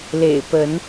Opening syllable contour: low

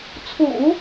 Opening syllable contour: low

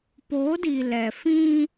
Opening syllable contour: rising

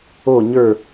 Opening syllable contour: falling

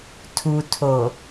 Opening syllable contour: low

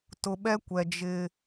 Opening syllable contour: low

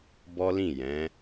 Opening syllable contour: high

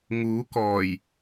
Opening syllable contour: rising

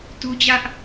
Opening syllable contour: high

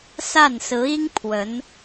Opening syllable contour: falling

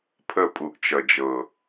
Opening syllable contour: falling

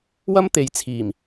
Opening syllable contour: high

